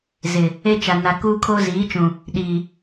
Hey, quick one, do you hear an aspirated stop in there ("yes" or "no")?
yes